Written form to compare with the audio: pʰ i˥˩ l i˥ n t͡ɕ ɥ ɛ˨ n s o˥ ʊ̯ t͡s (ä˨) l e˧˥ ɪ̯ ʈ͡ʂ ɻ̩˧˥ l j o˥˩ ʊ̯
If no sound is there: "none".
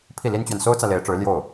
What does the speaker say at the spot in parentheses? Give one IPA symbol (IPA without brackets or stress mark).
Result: ä˨